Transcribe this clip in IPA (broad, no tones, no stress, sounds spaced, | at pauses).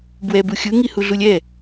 b w ɛ b u xʲ ɯ ŋ i h u ɮ u lʲ ɛ